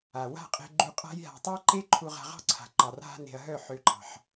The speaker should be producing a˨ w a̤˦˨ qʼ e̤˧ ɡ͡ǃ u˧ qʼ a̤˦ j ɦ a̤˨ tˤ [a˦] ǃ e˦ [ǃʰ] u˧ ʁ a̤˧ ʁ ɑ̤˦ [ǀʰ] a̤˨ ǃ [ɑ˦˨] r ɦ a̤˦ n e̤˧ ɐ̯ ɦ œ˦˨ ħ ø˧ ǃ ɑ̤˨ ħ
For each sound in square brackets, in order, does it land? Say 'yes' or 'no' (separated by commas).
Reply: yes, yes, yes, no